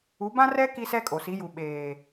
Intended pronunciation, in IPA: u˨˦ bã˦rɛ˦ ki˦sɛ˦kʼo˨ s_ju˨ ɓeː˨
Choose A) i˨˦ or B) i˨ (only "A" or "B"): A